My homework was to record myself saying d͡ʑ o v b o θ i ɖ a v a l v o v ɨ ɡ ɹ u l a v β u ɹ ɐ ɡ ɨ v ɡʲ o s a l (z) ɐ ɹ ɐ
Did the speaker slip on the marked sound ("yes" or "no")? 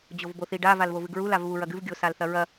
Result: yes